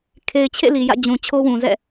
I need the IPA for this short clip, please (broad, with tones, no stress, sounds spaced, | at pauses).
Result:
kʰ e˨ ɪ̯ t͡ɕʰ ḛ˦˨ l i˨ j ä̰˦˨ d͡ʑ ũ˨ t͡ɕʰ o˦ w ũ˨ z ɛ̰˦˨